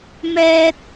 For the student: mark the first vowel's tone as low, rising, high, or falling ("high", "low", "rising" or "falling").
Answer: high